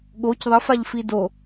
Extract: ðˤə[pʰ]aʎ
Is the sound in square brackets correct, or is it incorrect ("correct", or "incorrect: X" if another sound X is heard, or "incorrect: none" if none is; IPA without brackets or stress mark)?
incorrect: f